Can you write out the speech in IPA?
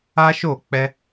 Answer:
a˦ ʃ o˦˨ k͡p ɛ˧

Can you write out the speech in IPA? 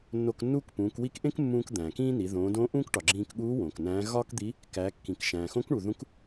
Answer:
nː o˧ k nː uː˥ k p ũː˩˧ k w i˧˥ k ʔ ẽ˥ k mː ũː˧ k d̪ æ̃ː˩ k ĩː˥ n i˩˧ ð õː˩˧ d õː˧˥ ʔ ũː˥ k ʈ ɒ˩ ɡ͡ǁ ĩː˧ k ɠ uː˧˥ w õː˩ k n æ̃ː˧˥ ɣ ɒː˥ k d̪ i˧˥ | k æ˩˧ kː ĩ˩ k ʃ æ̃ː˩ x õ˧˥ k ɳ u˩ ð ũ˧˥ k

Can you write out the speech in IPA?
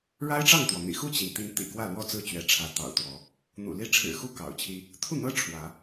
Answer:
ɻ a˦ ɪ̯ ʈ͡ʂ ɑ˥˨ ŋ t̪ w ɔ˩ n̪ ḭ˨˩ x u˥˨ t͡ɕ i˩ n t̪ i˨˦ n t̪ ḭ˨˩ k w ä˥˨ l w ɔ˥˨ t͡s ɹ̩˥˨ t͡ɕ ɥ ɛ˨˦ ʈ͡ʂʰ ä˨˦ t̪ ɑ̰˨˩ ʊ̯ t̪ w ɔ˨˦ | n̪ ṵ˨˩ l i˦ ʈ͡ʂʰ ɻ̩˨˩ x u˥˨ k ɑ̰˨˩ ʊ̯ t͡ɕʰ i˦ | t̪ʰ u˥˨ n̪ ɤ˦ ʈ͡ʂʰ w ä˨˦

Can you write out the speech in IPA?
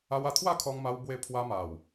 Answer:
a˧ w a˧ t̪ʰ w a˥˧ kʰ ɔ˧ ŋ m a˧ w b w e˧ pʰ w a˧ m a˨˩ w

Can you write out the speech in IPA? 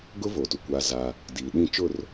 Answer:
ɡ ʊ˦ v o˨ t u˨ kʷ a˦ z a˦ | d iː˨ ɗ ĩ˦˨ t͡ʃ ʊ˦˨ r

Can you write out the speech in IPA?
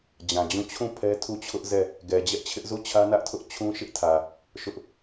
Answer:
d͡ʑ ã˨ d͡ʑ ũ˦˨ t͡ɕʰ ũ˦˨ pʰ ɛ˦ tʰ u˦˨ t͡ɕʰ ʊ˦ ʔ z ɛ˦˨ | ɡ ɛ˨ d͡ʑ ɛ˦ ʔ t͡ɕʰ ɪ˦ ʔ z u˦˨ t͡ɕʰ ä˦ n ä˦ ʔ tʰ ʊ˦ ʔ t͡ɕʰ ũ˦ ʃ ɪ˦ ʔ tʰ ä˨ | ʃ ʊ˦ ʔ

